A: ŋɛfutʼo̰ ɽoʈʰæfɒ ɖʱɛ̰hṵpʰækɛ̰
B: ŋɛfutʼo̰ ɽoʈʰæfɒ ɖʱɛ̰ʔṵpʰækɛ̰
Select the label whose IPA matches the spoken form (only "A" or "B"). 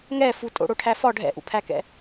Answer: B